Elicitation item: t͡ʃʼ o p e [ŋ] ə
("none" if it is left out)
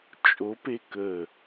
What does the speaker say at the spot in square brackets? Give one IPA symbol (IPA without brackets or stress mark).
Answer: k